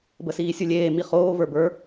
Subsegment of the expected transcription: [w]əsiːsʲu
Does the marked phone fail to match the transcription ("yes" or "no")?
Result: yes